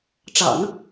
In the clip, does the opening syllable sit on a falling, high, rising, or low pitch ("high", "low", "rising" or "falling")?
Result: low